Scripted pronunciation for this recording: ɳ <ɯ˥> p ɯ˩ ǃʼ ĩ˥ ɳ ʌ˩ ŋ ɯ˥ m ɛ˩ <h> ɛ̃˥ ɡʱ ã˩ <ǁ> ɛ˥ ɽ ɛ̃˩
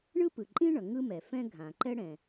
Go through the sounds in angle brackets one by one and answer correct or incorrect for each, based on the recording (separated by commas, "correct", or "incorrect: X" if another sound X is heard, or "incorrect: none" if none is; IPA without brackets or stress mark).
correct, incorrect: f, incorrect: ǃ